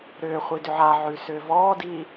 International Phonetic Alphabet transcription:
ɾ ʏː χʷ i d ʏ ʕ a ʕ ʉ s ʏː v ɔː d i

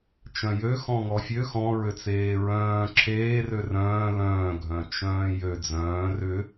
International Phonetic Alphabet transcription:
t͡ʃ œ̃ j ø x ɔ̃ ŋ ɔ fʲ ø x ɔ̃ ɹ ø t͡s eː ɹ œ̃ː ǁʰ eː r ø r œ̃ː l œ̃ː ɡʱ œ̃ t͡ʃ œ̃ː j ø d͡z œ̃ː r ʏ

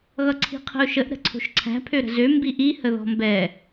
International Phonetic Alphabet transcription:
ɣ ʌ ǀʰ i̤ qʰ ə̤ ʊ̯ ʃ ə ʔ ɾ ə̤ ǀʰ o̤ ʃ ǀʰ æ̤ pʰ ø ɾ ə̤ z ø m b i ʔ i h ə ð ɔ̤ m b ɛ

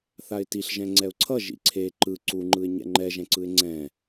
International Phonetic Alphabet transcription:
θ a ɪ̯ t i ɬ ʒ ɛ̃ ŋ͡ǀ ɛ ʊ̯ ǀʰ ʌ ʒ ḭ ǀʰ e ǃ ɯ ǀ u ŋ͡ǃ ɯ ɪ̯ ɲ ɛ̰ ŋ͡ǃ ɛ ʒ ɛ̃ ǀ ɯ ɪ̯ ŋ͡ǀ ɛ̃

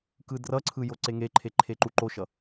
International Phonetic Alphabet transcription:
k ɯ d r ʌ ǀʰ ɯ j o ǀ e ŋ e ǃʰ e ǃʰ e ǃ u ǃ o ʃ ʌ

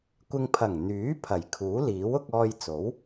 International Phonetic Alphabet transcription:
kʷ ɪ˧ ŋ pʰ ɐ˨˩ ŋ n̪ yː˨˥ pʰ ɐ˨˩ j kʰ uː˨˥ l iː˨˥ w ʊ˧ k̚ ɔː˧ j t͡s o˨˥ w

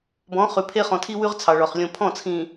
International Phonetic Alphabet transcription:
b ɔ̃˨˦ χ ʉ˨ pʰ e˦ χ ɔ̃˨ tʰ i˦ w ʉ˦ ʁ t͡sʰ ɑ˨ ɭ ɔ˨ χ lʲ õ˨ pʰ ɔ̃˦˨ t͡sʰ ĩ˨

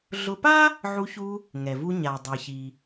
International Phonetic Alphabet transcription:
ɮ ʊ˧ p a˥ | ʕ u˧ ç u˧ | ŋ ɛ˩ v u˧ ɲ a˩ dˤ ɛ˩ ç i˩

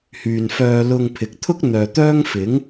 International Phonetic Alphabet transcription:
h yː˨ n f œː˧ l ʊ˧ ŋ pʰ ɪ˨ k̚ t̪ʰ ʊ˥ k̚ n̪ œː˨ t̪ œː˥ ŋ f ɪ˨˥ ŋ

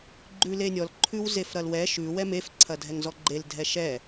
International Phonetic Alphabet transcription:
ɡ͡ǃ ʉ l e nʲ ɔ l ǃʰ ʉ w z e f ɾ ɐ l w ɛ ʃ ʉ w ɛ m e f ǀʰ ɐ dʱ ɛ ŋ z ɔ ɡ͡ǃ e l dʱ ɛ ʃ ɛ

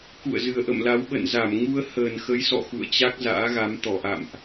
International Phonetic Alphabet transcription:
k ṵ˧˨ ə̯ z ɨ˨˩ ə̯ ʔ ə̰˧˨ m l a˨˦ w ɓ ə̰˧˨ n z a˧˩ m ŋ u˧ ə̯ h əː˨˩ n x ə˨˦ j s ɔ̰˧˨ x ṵ˧˨ ə̯ t͡ɕ a˦˥ k̚ z a̰ː˧˥ ɣ a˨˦ m t̪ ɔ˧˩ ʔ a̰˧˨ m ʔ

